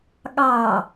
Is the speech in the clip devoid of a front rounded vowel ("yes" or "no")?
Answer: yes